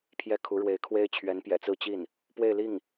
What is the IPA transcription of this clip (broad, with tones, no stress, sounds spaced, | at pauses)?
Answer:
pʰ j ɛ˥˩ kʰ u˧˥ ɻ w e˧˥ ɪ̯ kʰ w e˥ ɪ̯ t͡ɕʰ ɥ ɛ˧˥ n p j ɛ̰˨˩ t͡s ɹ̩˥˧ t͡ɕ i˥˩ n | p w e˥˧ ɪ̯ l i˥˩ ŋ